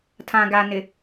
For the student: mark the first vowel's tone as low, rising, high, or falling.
low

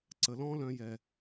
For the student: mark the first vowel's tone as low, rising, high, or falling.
low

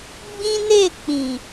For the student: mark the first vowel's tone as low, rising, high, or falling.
high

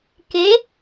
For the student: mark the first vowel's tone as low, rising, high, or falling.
rising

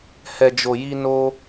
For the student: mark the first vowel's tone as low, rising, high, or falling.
low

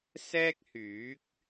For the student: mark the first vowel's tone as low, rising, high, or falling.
high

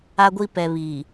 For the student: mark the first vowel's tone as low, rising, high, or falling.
high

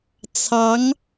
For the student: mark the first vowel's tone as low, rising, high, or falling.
rising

